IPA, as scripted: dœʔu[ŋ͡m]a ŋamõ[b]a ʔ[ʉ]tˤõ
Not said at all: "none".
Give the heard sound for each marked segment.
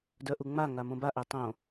ŋ͡m, b, ø

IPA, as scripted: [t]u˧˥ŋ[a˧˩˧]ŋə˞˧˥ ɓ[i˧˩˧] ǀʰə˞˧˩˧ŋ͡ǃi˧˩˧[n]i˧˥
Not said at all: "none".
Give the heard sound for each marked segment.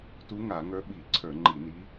t, a˧˩˧, i˧˩˧, n

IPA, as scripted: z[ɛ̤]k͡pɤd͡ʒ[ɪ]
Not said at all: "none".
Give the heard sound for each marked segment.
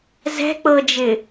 ɛ̤, ɪ

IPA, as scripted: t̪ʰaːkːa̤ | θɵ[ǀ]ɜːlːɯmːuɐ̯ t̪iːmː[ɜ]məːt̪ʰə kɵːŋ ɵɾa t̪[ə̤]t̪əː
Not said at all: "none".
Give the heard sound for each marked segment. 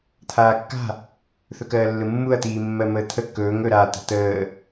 k, ɜ, ə̤

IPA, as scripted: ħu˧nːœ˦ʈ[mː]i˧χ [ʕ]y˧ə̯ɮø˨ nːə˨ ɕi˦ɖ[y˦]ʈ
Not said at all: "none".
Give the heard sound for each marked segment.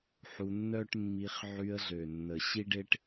mː, ʕ, e˦

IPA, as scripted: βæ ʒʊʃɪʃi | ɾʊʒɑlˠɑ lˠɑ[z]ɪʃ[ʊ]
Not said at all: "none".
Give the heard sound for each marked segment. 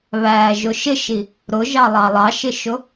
ʃ, ʊ

